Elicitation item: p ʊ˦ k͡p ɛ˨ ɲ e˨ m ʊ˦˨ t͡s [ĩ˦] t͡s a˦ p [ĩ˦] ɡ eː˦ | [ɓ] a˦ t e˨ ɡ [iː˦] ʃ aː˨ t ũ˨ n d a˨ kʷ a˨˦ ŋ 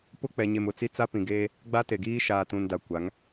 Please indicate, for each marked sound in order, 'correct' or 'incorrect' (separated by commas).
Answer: incorrect, incorrect, incorrect, correct